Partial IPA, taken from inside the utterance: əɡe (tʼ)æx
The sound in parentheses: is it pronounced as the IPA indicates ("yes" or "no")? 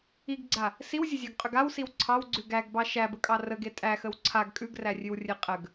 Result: yes